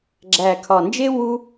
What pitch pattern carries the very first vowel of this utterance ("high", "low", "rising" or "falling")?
low